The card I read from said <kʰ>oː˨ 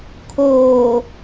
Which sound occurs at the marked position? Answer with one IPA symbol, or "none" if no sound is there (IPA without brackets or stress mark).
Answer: kʰ